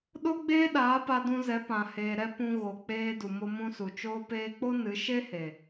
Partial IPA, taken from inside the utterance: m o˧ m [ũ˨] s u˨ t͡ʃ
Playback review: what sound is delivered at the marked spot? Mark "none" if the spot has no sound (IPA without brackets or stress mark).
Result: ũ˧